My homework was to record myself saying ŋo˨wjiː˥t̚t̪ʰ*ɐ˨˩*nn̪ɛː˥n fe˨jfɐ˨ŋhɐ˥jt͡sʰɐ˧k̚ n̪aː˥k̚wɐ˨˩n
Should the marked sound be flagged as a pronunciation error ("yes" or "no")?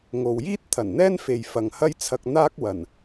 no